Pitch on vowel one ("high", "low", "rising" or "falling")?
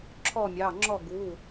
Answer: falling